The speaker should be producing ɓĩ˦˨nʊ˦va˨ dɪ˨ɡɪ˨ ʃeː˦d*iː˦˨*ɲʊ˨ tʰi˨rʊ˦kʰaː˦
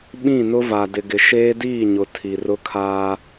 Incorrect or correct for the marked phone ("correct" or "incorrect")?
correct